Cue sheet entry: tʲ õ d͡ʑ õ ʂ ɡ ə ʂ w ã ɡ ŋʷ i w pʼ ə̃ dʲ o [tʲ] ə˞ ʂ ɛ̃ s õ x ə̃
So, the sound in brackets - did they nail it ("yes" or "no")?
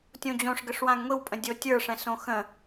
yes